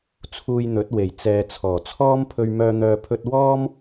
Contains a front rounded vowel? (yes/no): yes